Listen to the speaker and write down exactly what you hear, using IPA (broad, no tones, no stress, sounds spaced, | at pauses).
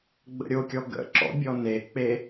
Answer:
ɡ͡b ə̰ ɾʲ o kʲ ɔ ɡ ə̰ ǁ ɔ̰ bʲ ɔ n e k͡p e